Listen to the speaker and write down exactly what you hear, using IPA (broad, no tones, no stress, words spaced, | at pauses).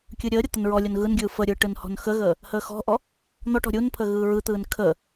kʲɯɾʲəːɾʲɤ t̪ənɹɔlʲon ɣɯnɡʲɯː fəɾʲɯː ʈɯnhɔ̤nxəɣəː | həːxɔ̤ʔɔ | n̪ɔʈɔ̤ ɾʲunpʰə ɣɯːɹɯt̪ɯːn kʰəː